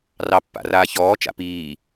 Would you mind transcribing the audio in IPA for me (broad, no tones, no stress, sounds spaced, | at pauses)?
r ɑ pː a̰ r aː ç ɔː t͡ʃ a̰ p iː